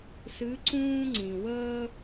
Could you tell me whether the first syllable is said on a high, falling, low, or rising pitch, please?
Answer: rising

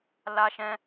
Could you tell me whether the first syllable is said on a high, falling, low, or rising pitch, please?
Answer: high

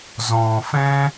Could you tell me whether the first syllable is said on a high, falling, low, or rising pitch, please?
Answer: low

